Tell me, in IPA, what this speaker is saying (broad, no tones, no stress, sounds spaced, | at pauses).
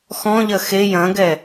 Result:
x ɔ̃ ʎ ɐ x e j ɐ̃ ɡ ɛ